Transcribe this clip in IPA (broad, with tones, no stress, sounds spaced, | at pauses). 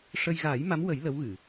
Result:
ʂ ə˧ j ɣ aː˨˩˦ j m a˧˥ m w ə˨˩˦ j l ə˧˥ w ɣ ɨ˨˩˨